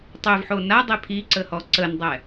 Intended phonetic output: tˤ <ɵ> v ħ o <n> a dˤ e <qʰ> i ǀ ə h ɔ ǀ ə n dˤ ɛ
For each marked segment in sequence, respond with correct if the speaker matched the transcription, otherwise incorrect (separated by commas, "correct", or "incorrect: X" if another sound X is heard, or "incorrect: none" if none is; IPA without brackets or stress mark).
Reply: incorrect: ø, correct, incorrect: pʰ